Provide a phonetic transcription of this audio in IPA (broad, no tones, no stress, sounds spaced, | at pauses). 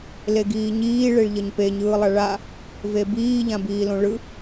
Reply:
l e ɡ iː ɲ iː ɭ e ɭ ʎ ʌ ɲ p e ɲ ɯː lˠ a ɭ a | v e b iː ʎ ã b iː l õ ɭ ɯ